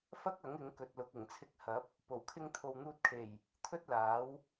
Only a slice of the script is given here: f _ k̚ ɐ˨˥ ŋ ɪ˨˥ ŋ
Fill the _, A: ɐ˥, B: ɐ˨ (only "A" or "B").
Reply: A